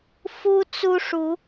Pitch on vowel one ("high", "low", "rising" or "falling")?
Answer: high